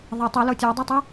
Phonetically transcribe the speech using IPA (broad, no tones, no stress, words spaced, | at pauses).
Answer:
ðˤe tˤilo tʲodˤitˤu